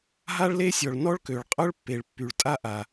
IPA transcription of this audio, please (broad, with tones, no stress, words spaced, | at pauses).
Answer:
ɦa˥ɭle˥sʲɔ˩ɭ nɔ˥ɭkø˩ɭqʼœ˥ɭpːe˩ɭ pːy˩ɭtʼa˥ ʔa˩